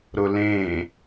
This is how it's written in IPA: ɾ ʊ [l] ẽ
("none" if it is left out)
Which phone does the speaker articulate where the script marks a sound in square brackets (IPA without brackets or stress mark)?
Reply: l